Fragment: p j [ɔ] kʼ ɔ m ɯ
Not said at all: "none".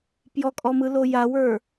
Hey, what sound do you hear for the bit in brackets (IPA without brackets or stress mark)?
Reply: ɔ